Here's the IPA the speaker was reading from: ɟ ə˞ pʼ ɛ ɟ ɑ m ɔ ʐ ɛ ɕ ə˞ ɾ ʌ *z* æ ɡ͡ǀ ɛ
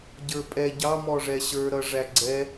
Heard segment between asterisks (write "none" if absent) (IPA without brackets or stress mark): ʐ